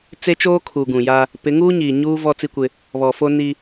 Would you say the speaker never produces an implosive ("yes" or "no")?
yes